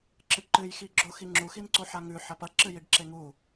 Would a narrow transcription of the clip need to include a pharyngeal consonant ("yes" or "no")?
yes